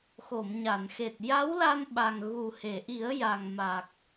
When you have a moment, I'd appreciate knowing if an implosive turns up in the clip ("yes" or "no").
yes